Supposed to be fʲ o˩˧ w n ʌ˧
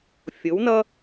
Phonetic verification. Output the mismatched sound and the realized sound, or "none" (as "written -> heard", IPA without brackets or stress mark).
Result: none